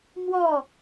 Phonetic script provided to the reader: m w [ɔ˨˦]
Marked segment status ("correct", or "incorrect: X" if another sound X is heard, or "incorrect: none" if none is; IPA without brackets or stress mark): incorrect: ɔ˥˨